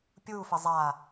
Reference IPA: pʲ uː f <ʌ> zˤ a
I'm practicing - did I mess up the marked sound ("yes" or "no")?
yes